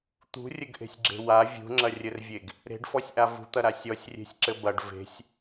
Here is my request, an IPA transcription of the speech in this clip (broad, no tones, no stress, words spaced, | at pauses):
t̪ṳrʲɘɡʔe̤sʲɡ͡ǁe̤ wa vʲṳŋ͡ǁɐrʲɘrvʲeɡ | ɾe̤ɖfɔsʲʔa vṳt̪ɐɾa sʲɔsʲrʲe̤sʲǁɘ bɐɖ ve̤sʲ